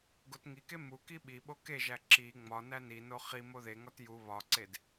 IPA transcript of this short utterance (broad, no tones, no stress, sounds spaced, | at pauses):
ɡ o t ŋ i k e m u k i ɓ i ɓ o k e ʒ æ ǁ i ŋ͡m ɒ n æ n i n o χ i m o ð e ŋ ɒ t j u β ɒ ǀ e d